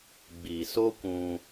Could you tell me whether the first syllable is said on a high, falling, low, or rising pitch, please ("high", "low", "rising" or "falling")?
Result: low